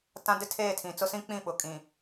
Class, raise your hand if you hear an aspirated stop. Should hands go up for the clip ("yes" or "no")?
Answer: yes